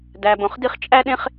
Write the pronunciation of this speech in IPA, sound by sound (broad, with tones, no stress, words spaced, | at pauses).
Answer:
dæ˨bõ˨χdi˦χ t͡ʃʼæ˥ɗẽ˥χ